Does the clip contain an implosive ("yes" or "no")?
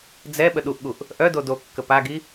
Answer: yes